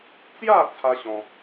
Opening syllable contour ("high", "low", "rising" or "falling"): falling